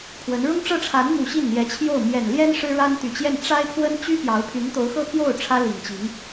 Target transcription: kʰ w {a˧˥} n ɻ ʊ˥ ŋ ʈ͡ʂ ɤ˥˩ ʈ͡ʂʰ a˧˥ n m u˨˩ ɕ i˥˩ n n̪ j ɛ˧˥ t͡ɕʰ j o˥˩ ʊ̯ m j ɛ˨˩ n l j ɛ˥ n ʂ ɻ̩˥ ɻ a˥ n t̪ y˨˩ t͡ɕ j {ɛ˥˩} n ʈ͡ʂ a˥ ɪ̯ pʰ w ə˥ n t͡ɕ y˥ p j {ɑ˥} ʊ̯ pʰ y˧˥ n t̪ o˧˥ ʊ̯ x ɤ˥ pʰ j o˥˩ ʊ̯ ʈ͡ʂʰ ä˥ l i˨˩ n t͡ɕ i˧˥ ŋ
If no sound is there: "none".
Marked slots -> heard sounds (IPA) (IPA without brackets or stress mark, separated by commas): ə˧˥, ɛ˥˩, ɑ˧˥